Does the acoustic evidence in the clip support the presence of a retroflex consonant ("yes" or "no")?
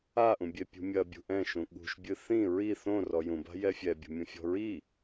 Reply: no